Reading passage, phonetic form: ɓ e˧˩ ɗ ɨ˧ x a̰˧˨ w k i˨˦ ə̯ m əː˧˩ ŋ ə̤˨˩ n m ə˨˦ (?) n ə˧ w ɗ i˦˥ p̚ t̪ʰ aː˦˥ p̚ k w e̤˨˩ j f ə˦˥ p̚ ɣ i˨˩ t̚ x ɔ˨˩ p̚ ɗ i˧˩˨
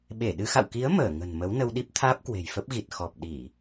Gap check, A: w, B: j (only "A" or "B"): A